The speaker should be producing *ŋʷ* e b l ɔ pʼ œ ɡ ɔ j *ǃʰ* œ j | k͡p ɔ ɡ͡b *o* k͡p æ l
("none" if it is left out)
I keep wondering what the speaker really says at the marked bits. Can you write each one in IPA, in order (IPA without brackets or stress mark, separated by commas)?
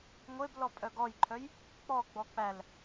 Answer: ŋʷ, ǃʰ, ɔ